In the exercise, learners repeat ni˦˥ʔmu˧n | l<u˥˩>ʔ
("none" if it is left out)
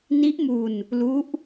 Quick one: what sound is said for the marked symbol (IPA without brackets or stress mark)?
u˦˥